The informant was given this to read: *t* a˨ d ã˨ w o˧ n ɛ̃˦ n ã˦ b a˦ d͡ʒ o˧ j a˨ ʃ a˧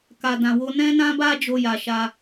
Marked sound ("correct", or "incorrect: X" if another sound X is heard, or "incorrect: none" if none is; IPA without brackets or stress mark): incorrect: k